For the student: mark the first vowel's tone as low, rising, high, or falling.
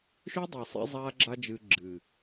high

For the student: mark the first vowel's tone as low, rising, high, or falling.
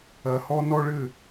low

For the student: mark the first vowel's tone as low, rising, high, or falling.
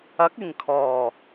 rising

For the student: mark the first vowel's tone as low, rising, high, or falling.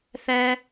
high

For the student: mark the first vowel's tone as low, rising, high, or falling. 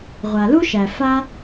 low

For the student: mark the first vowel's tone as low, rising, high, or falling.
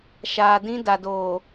low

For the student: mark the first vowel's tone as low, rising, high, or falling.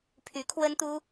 rising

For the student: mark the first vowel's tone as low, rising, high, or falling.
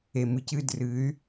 low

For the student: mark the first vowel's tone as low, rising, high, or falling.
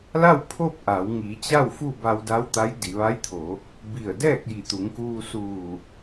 falling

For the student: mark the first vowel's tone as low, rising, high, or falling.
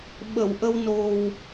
low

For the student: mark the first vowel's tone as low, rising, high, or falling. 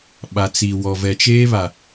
low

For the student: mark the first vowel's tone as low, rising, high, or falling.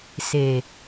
low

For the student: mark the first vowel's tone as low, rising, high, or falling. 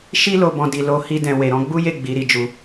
high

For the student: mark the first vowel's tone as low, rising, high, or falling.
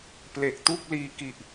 low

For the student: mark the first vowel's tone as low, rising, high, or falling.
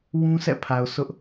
high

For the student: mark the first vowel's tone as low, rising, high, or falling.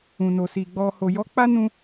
low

